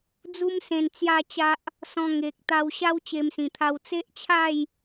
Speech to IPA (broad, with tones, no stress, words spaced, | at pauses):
d͡zu˦msẽ˧nt͡sja˥˧t͡ɕa˦ʔ | sɔ̃˧ŋe˨k̚ t̪a˧wɕa˦w t͡ɕe˧msĩ˨˩t̪ʰa˧w t͡se˦ʔt͡ɕʰa˥˧j